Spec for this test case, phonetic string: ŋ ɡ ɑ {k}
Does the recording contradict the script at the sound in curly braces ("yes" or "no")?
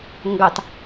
yes